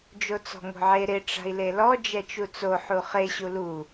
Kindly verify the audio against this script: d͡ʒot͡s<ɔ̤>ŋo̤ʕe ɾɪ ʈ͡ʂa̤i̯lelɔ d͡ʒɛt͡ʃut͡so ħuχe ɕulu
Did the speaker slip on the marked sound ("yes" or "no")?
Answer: no